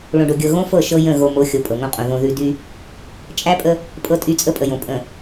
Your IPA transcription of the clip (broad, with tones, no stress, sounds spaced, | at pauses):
ɭ õ˨ ɖ o˨ ɡʲ ɤ˨ ɣ õ˦ f ɤ˦˨ ʃ ɤ˦ j ə̃˦˨ ɣ o˨ m o˨˦ xʲ o˨˦ pʼ ɤ˨ ŋ õ˦ qʼ õ˨ ð õ˨ ð ʉ˨ d y˦ | t͡ʃʼ æ˦ pʼ ə˦ | pʼ ɤ˦˨ tʼ y˦˨ t͡sʼ ə˦ pʼ ə˨ j õ˨ pʼ ə̃˨